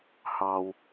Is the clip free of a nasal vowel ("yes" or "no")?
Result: yes